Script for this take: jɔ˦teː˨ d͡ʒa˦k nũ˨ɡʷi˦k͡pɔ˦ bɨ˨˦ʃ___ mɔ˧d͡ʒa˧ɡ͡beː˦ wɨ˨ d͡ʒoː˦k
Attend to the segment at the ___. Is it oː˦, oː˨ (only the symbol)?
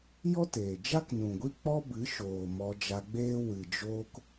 oː˨